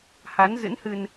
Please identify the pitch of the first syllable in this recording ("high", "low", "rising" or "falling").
rising